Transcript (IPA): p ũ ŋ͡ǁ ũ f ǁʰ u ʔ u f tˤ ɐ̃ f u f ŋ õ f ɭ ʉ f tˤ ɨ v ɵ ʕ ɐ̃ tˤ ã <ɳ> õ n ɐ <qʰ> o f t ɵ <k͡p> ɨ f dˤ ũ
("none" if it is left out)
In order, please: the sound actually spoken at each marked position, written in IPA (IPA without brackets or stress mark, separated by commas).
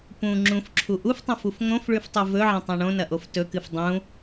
ɳ, ʔ, k